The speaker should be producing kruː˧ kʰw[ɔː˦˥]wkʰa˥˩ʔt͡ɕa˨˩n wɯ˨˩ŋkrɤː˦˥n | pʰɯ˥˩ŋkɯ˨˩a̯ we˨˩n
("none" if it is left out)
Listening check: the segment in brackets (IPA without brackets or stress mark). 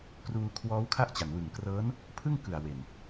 ɔː˦˥